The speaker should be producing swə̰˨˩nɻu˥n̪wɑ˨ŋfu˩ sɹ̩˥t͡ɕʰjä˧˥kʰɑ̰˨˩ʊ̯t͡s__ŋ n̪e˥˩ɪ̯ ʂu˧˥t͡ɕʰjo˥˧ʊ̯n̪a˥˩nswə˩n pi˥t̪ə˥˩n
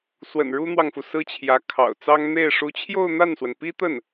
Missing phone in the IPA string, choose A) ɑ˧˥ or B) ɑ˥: B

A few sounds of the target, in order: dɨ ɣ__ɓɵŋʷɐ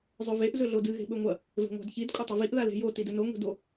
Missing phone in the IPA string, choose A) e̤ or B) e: A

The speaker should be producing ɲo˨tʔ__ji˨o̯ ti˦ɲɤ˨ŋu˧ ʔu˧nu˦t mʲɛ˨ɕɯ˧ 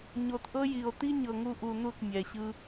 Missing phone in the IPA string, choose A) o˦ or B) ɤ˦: B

